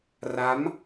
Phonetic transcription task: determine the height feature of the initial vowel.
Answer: low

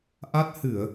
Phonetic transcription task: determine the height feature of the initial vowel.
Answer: low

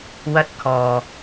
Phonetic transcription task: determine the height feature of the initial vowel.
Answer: low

